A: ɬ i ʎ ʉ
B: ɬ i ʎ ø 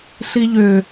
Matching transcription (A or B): B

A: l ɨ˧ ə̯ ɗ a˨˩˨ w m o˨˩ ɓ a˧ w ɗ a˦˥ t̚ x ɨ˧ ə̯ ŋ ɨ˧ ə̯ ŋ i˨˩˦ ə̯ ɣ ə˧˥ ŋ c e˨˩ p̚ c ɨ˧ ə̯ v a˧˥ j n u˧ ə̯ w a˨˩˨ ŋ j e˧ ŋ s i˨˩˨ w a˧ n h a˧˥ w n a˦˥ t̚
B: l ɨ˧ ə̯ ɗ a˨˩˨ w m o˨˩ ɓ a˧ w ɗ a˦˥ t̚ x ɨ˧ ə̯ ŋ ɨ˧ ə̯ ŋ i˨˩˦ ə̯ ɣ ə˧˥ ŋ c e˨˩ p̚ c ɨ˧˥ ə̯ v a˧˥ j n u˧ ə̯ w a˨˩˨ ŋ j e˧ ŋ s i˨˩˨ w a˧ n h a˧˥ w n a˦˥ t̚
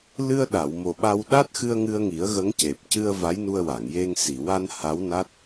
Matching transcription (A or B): A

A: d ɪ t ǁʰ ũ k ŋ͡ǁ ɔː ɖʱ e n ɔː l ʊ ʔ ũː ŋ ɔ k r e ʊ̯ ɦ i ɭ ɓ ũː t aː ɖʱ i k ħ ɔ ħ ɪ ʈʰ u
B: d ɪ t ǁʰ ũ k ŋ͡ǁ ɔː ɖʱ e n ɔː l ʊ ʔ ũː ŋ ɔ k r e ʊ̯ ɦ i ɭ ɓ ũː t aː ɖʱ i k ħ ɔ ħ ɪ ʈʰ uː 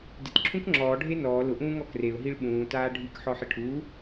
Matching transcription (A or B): B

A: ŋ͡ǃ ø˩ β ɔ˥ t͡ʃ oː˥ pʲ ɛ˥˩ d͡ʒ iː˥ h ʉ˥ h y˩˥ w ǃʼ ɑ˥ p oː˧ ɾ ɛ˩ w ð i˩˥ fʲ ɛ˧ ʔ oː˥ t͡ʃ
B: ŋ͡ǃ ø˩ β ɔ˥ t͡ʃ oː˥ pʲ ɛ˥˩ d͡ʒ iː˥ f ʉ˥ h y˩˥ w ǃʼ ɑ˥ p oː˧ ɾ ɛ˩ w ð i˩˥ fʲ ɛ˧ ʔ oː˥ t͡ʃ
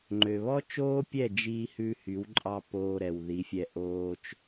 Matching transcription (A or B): A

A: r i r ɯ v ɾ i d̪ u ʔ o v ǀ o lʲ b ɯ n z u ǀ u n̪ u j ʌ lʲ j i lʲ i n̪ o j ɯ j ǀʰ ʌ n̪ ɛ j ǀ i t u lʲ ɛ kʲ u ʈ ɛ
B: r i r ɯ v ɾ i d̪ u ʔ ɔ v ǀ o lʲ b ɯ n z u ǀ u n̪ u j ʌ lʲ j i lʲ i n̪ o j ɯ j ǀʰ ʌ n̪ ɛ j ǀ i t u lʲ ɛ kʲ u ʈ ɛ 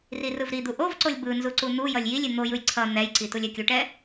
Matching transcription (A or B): A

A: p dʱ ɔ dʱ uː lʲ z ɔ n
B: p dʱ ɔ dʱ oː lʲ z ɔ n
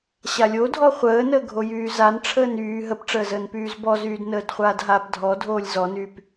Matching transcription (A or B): B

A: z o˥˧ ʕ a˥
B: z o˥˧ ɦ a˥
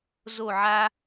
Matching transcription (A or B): A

